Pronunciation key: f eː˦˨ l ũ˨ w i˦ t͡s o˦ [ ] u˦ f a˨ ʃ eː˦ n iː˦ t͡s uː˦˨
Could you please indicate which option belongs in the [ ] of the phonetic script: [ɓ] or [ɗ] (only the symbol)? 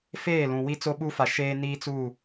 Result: ɓ